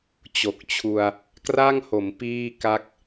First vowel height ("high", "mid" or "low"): mid